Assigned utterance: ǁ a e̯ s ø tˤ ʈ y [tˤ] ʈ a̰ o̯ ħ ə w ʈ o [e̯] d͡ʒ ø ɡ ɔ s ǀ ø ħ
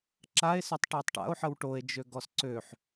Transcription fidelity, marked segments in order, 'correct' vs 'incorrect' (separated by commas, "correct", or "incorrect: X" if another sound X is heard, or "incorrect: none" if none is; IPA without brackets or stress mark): correct, correct